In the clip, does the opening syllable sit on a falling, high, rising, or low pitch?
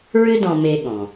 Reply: high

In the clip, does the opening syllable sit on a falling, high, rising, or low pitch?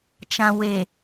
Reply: low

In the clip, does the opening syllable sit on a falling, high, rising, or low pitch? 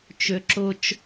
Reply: high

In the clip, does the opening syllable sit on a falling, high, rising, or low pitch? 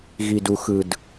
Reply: low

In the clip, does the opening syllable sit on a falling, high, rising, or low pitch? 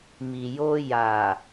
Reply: low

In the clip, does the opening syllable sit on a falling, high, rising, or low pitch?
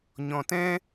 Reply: low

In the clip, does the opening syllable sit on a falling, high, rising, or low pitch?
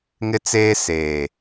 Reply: high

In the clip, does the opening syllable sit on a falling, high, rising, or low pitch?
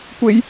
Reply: high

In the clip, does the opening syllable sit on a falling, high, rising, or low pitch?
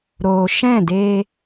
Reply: low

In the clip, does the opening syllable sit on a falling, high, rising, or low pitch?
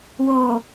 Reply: low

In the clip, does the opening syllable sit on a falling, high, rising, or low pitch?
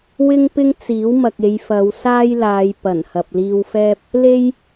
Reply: high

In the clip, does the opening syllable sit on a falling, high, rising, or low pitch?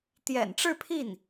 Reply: low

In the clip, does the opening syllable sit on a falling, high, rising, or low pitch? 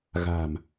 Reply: low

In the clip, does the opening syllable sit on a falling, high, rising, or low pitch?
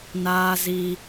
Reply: high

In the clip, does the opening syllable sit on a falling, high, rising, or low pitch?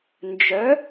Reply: rising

